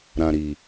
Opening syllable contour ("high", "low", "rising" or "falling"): low